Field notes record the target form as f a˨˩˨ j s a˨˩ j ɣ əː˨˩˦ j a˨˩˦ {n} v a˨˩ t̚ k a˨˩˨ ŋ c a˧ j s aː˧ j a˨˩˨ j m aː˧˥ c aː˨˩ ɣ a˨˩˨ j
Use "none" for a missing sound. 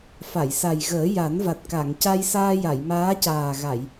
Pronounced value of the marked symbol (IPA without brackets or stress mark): n